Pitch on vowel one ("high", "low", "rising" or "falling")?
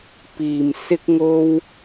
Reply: low